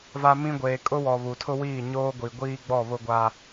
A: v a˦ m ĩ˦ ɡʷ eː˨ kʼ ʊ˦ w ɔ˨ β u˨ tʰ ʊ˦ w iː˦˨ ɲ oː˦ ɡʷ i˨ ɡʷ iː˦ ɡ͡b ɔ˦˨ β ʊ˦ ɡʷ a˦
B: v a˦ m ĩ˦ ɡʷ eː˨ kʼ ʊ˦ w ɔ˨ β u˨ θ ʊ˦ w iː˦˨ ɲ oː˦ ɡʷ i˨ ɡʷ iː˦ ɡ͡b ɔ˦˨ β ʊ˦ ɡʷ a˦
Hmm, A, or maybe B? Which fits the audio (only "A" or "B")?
A